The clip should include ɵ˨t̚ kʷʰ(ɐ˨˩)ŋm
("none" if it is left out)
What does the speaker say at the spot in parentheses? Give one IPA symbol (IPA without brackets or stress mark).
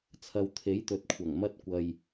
ɐ˨˩